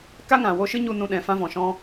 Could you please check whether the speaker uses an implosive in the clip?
yes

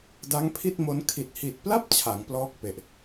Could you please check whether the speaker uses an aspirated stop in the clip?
yes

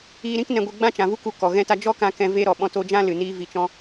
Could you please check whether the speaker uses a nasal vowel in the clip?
yes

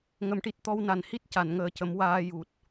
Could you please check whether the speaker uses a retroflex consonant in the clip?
yes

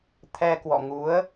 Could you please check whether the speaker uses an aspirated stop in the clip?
yes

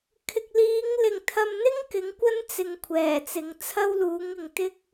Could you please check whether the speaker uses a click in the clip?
no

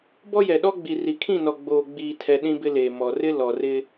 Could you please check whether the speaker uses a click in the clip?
no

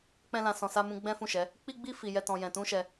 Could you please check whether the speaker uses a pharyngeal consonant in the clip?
no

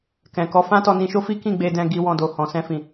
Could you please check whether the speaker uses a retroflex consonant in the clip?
no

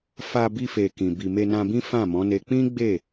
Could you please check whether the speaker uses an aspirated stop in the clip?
no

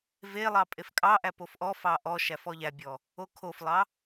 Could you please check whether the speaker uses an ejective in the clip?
yes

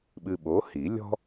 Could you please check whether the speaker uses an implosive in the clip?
yes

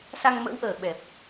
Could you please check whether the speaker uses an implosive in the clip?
yes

